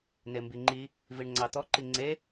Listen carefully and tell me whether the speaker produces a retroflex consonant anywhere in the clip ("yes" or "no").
yes